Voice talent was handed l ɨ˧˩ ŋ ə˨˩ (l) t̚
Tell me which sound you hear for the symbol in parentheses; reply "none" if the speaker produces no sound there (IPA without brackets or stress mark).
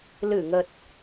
none